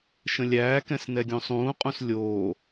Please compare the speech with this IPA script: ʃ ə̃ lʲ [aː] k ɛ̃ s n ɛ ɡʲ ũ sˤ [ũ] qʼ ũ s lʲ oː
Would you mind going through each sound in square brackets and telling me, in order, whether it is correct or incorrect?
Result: incorrect: æː, incorrect: ũː

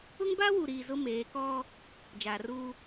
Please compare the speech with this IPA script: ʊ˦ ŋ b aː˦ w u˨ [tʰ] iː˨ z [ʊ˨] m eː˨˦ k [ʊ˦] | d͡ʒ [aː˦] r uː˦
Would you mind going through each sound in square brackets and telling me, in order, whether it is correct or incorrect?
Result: incorrect: ɾ, incorrect: ʊ˦, incorrect: ɔ˦, incorrect: aː˨

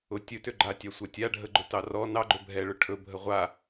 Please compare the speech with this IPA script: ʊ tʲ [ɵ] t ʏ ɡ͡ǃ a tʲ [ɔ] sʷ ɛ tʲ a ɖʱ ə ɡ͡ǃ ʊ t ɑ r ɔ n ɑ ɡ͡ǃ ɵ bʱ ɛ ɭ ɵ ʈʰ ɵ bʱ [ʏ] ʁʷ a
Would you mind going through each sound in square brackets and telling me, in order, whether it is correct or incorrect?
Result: correct, incorrect: ɑ, incorrect: ə

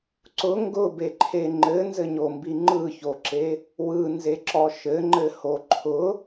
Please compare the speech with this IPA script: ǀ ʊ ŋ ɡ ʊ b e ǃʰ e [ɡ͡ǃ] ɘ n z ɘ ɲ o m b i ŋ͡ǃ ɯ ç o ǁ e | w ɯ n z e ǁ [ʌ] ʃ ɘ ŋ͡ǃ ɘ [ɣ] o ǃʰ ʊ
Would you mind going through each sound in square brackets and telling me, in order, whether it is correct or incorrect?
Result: incorrect: ŋ͡ǃ, incorrect: ɔ, incorrect: h

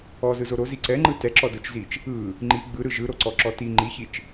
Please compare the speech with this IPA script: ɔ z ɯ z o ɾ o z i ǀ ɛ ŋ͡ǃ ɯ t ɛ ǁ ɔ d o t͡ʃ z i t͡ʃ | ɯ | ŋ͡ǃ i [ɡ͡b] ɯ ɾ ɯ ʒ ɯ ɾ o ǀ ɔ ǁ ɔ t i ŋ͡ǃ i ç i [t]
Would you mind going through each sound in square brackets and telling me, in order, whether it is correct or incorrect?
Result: correct, incorrect: t͡ʃ

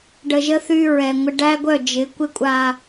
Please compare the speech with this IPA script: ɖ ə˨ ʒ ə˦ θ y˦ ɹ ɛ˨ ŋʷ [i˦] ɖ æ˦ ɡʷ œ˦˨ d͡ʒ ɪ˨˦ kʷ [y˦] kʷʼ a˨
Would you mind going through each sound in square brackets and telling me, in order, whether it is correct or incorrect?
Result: incorrect: ɪ˦, incorrect: ɪ˦

